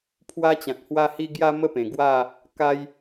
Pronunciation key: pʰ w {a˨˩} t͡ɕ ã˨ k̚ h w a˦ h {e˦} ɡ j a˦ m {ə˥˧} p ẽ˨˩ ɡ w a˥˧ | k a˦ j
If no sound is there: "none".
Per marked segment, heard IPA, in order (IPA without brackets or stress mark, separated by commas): a˦, i˦, ə˥˧